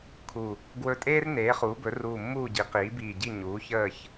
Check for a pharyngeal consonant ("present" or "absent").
absent